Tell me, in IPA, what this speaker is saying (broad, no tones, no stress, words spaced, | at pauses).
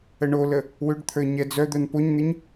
əɳolə | wʏɖt̪ʰə˞ ɲɛd͡zœd̪œn poɲn̪ɪɲ